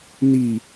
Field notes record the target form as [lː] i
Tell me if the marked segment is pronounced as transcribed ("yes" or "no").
no